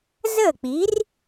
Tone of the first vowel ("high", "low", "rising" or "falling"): falling